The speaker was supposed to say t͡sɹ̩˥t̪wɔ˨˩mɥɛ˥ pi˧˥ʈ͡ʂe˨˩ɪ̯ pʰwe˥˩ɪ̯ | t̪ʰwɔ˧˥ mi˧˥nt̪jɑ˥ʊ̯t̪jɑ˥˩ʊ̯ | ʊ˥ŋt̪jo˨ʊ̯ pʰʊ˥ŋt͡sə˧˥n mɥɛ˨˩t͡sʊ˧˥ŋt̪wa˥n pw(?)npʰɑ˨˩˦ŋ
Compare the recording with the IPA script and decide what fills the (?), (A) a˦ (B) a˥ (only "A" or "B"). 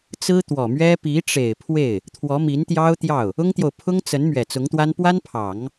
B